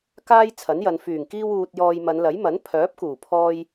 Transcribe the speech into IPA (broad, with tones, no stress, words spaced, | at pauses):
kaː˥j t͡sʰɐ˨˥njɐ˨˧n fyː˨˩ŋkiː˧wuː˨t̚jɔː˨j mɐ˨˧nlɐ˨˥jmɐ˨˥n pʰœː˨˥p̚kuː˨˩pʰɔː˧j